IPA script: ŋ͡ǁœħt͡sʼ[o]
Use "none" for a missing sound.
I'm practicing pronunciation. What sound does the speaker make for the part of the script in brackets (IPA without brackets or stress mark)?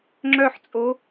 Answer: o